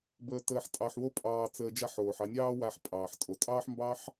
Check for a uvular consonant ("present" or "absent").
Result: absent